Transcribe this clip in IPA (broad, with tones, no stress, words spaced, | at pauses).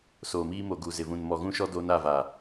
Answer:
soː˨miː˦mo˨ ɡu˨zɪ˨vũ˨n mɔ˨ɣũ˦ʃɔ˦ do˦na˦˨va˨